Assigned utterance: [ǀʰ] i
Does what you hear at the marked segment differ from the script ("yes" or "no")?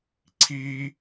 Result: no